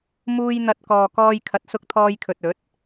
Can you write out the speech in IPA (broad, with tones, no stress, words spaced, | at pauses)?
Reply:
muː˧jn̪ɐ˨t̚ kɔː˨kɔː˧j kʰɐ˨˥t̚sʊ˧k̚t̪ʰɔː˧jkʰɵ˨t̚ ɵ˨˥t̚